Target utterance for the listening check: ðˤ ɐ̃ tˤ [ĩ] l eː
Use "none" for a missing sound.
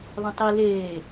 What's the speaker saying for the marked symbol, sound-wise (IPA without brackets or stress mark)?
i